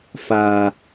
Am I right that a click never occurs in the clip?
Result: yes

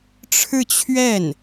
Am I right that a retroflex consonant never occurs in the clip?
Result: no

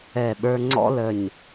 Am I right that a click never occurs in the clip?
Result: no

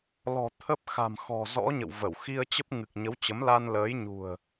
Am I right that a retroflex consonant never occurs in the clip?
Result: yes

